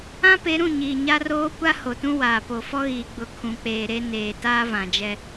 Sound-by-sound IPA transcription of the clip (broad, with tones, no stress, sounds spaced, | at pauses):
ã˦ p e˨˦ ɾ ũ˦˨ ɲ iː˨ ɲ a˦ r oː˦ kʷ a˦ h o˨ t ũ˦ w aː˨ p o˨ f ɔ˦ ɣ iː˨ ɡ͡b ʊ˨ kʰ ũ˨ k͡p eː˨ ɾ e˦ n eː˨ t aː˦ v ã˨ d͡ʒ ɛ˦